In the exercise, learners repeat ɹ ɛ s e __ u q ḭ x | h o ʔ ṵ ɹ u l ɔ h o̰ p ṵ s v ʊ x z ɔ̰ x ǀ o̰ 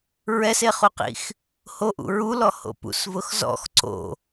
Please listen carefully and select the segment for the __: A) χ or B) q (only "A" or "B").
A